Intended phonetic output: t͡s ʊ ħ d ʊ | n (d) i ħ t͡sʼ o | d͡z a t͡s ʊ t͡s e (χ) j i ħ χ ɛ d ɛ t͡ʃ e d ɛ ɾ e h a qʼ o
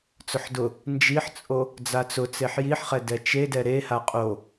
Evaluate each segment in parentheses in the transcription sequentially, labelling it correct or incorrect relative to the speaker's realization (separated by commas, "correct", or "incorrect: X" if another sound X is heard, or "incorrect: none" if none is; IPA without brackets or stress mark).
incorrect: d͡ʒ, incorrect: ħ